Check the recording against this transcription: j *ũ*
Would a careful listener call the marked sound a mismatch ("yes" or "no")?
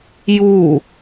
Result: yes